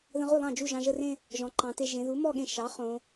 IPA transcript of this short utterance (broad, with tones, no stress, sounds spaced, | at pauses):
ð ə̃˧ ʁ u˥˩ lˠ ɑ̃˥˩ d͡ʒ u˥˩ ʒ ɑ̃˩˧˩ ʒ ə˥˧ r ẽ˥˧ | ʒ ɔ̃˩˧ ǃ ɑ̃˩˧ t e˧ ʒ ẽ˩˧ ð u˩˥ m ɔ˥˧ ɠ ẽ˧ ʃ ɑ˩˥ χ õ˩˧